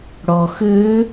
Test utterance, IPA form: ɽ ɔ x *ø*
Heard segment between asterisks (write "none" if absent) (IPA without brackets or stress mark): ø